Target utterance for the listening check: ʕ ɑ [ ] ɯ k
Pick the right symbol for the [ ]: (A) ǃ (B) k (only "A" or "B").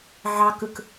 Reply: B